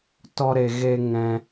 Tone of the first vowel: high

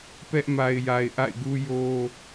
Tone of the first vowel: high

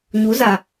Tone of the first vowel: rising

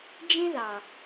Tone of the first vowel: high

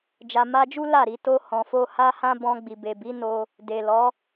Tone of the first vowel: low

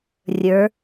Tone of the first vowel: rising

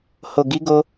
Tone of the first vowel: low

